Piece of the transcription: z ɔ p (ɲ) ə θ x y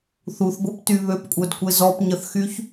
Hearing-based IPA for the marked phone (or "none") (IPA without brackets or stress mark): ɲ